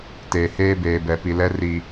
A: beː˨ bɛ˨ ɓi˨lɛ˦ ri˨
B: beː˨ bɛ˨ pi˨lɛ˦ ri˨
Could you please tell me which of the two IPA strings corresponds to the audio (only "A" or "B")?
B